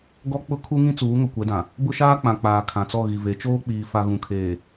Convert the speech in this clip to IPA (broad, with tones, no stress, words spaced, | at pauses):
ɡɔ˦k͡pʊ˦ kʰu˦ŋĩ˦ t͡suː˨˦ŋʊ˨ kʷɛ˨˦dã˨ | bʊ˦ʃaː˦k͡pã˨k͡paː˨ kʰã˨t͡sɔ˦˨ ɣi˨ve˨˦ t͡ʃoː˦k͡piː˨fa˨ ɣũ˨kʰeː˨